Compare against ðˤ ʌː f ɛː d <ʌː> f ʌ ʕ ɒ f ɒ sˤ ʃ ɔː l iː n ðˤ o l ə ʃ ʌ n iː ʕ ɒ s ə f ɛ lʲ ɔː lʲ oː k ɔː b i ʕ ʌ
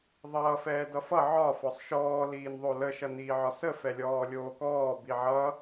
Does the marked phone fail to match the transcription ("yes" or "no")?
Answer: yes